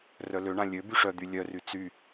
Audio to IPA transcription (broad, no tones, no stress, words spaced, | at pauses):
rœløɳã lʲø byʂœd̪y lʲœry t͡sy